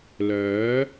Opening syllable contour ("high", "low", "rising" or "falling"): rising